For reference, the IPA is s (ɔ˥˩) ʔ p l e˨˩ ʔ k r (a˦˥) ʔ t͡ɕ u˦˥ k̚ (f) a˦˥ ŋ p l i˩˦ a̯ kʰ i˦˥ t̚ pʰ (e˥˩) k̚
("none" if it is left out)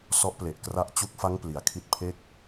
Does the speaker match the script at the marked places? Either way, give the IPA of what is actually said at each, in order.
ɔ˦˥, a˦˥, f, e˥˩

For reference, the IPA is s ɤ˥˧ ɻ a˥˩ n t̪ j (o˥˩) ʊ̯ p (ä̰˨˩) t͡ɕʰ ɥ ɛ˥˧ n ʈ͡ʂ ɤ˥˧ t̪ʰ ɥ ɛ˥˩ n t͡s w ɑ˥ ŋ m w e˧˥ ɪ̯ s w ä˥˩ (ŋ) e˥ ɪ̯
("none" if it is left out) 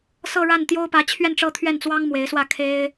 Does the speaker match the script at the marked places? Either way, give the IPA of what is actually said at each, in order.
o˥, ä˧˥, kʰ

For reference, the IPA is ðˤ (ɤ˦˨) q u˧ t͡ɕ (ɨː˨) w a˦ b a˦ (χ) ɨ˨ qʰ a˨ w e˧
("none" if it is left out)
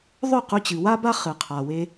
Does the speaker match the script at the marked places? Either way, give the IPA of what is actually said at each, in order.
ɵ˦˨, ɨ˨, χ

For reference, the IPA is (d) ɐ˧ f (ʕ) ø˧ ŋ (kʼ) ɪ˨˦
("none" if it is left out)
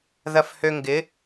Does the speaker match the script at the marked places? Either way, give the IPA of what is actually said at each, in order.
ð, h, ɡ

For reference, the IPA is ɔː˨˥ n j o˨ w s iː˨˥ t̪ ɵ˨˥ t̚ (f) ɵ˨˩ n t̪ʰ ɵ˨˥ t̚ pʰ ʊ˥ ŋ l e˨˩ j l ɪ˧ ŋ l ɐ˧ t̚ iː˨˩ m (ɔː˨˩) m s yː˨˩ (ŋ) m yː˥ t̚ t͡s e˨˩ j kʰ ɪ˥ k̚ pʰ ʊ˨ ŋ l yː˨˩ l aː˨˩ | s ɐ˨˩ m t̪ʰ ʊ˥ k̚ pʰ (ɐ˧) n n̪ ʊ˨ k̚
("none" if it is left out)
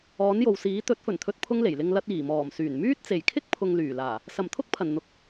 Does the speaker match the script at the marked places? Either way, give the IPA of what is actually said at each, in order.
f, ɔː˨˩, n, ɐ˨˩

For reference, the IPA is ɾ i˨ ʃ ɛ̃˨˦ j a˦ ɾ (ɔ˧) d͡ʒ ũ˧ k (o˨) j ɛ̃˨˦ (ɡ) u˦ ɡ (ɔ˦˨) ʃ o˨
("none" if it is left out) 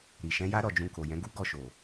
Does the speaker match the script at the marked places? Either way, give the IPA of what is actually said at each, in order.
ɔ˦˨, o˨, ɡ, ɔ˦˨

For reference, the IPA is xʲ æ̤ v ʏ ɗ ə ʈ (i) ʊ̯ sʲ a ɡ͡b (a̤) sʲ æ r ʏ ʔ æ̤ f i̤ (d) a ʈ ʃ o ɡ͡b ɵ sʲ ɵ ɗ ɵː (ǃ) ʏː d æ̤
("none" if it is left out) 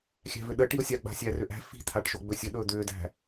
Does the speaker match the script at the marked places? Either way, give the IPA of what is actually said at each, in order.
i, a̤, t̪ʰ, d̪

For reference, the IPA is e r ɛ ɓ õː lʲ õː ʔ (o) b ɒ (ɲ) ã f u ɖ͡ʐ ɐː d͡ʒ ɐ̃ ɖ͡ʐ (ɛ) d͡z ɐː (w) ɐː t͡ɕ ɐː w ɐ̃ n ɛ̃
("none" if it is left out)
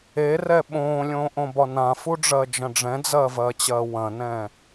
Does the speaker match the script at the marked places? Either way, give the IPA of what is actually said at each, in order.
õ, n, ɛ̃, v

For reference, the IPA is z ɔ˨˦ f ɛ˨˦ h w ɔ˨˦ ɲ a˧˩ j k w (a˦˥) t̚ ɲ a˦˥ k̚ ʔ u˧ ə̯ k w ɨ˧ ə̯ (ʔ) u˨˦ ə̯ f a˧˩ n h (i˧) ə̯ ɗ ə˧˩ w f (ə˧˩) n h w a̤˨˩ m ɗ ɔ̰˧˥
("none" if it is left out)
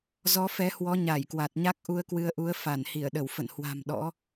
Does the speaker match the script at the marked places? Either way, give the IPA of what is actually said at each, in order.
a˨˩, ʔ, i˧˩, ə̰˧˨

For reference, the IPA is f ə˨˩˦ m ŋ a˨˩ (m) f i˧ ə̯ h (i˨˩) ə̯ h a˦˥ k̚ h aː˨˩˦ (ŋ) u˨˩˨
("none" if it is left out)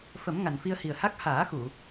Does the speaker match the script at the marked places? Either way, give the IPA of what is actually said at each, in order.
n, i˨˩, x

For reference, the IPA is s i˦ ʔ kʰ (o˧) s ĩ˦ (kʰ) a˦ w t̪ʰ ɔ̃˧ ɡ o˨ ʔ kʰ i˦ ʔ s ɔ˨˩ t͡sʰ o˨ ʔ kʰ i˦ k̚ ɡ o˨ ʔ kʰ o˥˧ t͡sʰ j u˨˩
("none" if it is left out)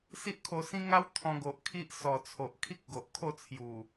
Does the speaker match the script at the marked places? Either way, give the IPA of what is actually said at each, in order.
o˧, ŋ

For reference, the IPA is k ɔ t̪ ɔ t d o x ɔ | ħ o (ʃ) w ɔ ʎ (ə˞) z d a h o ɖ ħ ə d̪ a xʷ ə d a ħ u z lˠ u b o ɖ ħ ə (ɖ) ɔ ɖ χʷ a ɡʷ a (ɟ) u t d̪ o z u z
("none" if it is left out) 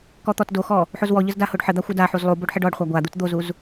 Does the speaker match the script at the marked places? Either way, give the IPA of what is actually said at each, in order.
z, ə, ɖ, d̪

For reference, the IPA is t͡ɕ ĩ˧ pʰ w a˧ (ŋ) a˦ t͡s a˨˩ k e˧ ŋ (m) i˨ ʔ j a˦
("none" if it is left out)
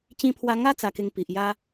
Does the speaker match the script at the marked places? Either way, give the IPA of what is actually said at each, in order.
ŋ, p

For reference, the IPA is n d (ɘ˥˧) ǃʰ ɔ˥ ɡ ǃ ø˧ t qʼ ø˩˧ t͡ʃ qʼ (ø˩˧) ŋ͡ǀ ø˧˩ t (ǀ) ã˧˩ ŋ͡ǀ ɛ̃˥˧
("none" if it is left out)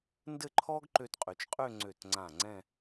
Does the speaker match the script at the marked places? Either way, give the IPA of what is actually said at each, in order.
ɘ˥˧, ø˥˧, ŋ͡ǀ

